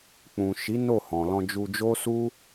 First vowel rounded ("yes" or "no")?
yes